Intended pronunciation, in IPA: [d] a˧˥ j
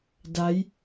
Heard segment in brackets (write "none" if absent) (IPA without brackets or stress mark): d